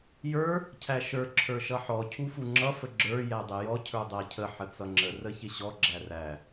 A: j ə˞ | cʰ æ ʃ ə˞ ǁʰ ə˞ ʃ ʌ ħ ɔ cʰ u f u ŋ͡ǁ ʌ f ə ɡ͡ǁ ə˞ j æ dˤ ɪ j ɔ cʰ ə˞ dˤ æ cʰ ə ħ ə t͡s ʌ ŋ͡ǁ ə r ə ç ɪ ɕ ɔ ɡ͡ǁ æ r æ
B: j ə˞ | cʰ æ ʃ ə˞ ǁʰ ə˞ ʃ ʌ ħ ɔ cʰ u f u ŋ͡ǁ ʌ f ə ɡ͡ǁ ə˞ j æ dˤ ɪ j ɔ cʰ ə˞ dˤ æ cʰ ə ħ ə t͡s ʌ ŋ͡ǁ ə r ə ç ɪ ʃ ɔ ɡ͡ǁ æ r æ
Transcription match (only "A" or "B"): A